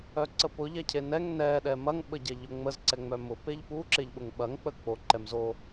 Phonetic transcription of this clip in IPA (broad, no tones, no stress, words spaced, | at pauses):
œǀəpʊ ʎɛcʰenɛŋ nɛ ɗɛmɐŋ ɓəɟɛʎʊŋ͡məz ǀɛŋ͡mœmʊ peʎpu ǁeʎɓʊŋɓɐŋ k͡pək͡po ǃɛmzo